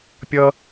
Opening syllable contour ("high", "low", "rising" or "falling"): high